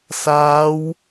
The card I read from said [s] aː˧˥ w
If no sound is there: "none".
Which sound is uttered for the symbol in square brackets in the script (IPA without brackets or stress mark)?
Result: s